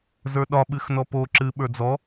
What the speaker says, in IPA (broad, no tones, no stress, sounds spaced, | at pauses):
z ə˞ ɗ ɒ ɓ ɨ x n ɔ p o ǁ ɨ ɓ ə˞ d͡z ɔ